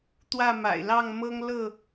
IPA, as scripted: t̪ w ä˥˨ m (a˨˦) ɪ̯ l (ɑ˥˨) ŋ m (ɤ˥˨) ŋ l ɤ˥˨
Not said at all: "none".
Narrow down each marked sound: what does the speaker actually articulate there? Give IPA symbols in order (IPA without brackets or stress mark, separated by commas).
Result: a̰˨˩, ɑ˥˨, ɤ˦